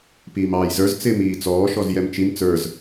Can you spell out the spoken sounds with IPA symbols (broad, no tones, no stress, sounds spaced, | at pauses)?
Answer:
p iː m ɑː j z ə˞ z t͡s ɪː m iː t͡s ɔː ʃ ɔ z j ɛ m t͡ʃ i m t͡s ə˞ z